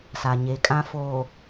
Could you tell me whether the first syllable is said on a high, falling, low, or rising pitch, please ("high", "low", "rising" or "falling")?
low